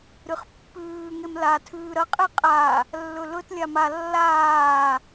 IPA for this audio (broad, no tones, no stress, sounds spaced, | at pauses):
ɾ ɨ χ pː ʉː ŋ e m l a tʰ ʉː ɾ ɐ qʼ e qʼ a | lː ɵ l ɵ t lʲ a m a lː aː